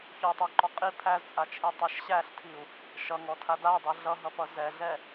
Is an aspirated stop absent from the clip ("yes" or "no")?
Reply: no